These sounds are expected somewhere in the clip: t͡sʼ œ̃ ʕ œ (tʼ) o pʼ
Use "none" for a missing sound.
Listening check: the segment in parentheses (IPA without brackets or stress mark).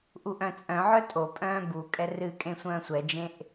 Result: tʼ